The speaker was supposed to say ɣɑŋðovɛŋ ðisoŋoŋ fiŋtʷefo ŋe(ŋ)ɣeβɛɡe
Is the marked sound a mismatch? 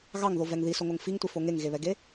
no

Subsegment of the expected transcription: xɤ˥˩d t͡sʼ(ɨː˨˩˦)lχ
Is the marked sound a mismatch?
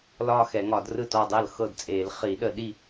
yes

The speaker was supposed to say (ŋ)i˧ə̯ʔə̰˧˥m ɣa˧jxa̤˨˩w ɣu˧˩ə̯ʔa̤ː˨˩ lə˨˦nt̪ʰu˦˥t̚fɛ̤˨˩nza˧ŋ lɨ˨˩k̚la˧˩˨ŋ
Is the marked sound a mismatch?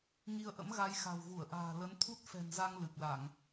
no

